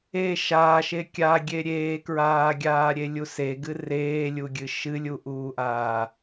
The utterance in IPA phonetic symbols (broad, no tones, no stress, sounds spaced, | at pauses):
e ʃ aː ʃ e kʲ a ɡʲ e ɾʲ eː k ɹ aː ɡʲ aː ɾʲ e lʲ u s e ɡ ɨ r eː lʲ u ɡʲ ɨ ʃ ɨ lʲ u ʔ uː ʔ aː